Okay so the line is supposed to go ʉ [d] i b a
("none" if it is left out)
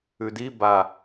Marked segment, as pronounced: d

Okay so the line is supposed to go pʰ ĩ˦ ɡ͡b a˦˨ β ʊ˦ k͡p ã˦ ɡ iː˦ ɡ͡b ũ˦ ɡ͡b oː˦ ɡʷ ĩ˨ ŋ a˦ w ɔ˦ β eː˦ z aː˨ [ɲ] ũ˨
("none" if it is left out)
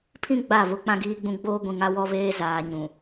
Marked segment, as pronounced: ɲ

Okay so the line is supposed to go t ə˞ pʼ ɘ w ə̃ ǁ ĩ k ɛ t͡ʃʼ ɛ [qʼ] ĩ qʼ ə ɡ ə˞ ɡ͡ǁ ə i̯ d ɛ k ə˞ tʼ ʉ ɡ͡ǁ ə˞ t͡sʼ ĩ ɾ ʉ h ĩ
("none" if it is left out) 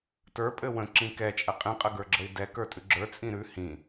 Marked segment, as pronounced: qʼ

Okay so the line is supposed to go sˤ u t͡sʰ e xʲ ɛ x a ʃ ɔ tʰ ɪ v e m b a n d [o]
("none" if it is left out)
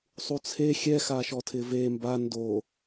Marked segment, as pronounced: o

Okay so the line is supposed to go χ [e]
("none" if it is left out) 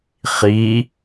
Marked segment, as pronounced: i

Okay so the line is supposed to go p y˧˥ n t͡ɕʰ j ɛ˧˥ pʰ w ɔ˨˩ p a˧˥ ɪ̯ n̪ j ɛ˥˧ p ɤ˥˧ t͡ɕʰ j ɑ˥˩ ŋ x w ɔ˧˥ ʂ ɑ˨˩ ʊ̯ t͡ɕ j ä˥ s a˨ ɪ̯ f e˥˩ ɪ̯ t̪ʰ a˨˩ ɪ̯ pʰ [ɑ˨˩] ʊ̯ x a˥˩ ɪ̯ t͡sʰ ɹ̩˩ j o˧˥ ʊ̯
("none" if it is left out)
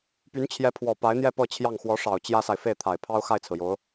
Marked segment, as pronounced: ɑ˥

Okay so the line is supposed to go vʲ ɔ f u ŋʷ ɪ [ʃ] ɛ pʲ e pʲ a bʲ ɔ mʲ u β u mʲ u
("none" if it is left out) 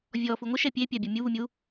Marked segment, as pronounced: ʃ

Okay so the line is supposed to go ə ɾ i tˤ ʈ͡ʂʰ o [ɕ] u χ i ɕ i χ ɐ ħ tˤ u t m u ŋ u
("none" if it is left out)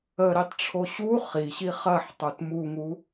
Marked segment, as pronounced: ɕ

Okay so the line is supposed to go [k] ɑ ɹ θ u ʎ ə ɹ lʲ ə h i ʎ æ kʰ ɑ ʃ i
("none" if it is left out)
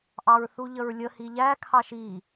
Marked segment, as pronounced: ʔ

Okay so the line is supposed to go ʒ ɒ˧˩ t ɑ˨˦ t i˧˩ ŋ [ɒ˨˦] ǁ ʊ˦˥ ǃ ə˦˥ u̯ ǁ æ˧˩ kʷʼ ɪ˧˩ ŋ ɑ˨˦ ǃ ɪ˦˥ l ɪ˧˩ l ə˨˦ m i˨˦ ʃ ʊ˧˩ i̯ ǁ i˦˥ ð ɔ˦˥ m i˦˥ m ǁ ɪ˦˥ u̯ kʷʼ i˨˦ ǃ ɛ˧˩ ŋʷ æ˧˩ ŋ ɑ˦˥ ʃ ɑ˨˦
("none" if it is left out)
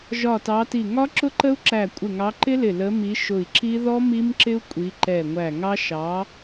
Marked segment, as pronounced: ɒ˦˥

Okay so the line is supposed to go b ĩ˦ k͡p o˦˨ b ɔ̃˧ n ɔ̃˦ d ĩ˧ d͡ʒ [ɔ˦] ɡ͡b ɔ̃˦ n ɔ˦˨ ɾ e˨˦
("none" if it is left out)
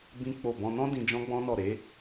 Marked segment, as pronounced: ɔ̃˦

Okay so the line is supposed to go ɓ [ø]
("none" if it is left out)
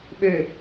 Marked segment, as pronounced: ø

